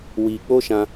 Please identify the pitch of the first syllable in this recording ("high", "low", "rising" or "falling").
low